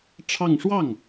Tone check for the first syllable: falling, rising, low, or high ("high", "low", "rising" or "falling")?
falling